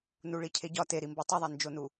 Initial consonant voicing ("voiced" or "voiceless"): voiced